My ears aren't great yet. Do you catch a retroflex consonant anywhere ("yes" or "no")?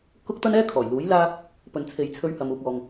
no